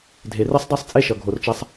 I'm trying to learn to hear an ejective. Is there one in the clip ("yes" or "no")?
yes